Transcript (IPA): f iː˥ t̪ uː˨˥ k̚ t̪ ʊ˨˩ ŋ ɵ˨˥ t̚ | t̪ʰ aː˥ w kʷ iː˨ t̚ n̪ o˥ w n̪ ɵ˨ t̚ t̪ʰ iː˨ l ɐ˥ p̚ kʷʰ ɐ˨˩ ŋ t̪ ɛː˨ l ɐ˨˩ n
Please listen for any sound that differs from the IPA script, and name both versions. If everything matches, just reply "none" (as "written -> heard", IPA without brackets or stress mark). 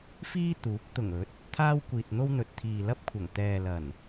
none